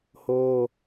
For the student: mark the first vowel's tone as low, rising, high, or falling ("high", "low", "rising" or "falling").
high